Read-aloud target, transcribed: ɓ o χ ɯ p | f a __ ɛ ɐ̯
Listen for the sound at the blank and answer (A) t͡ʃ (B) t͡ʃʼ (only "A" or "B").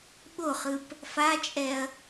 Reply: B